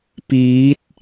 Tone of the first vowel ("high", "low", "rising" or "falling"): rising